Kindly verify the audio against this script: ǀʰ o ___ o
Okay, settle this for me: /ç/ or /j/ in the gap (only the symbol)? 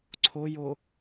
j